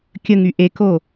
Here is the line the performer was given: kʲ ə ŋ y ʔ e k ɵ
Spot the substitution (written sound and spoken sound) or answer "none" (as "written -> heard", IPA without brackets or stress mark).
ɵ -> o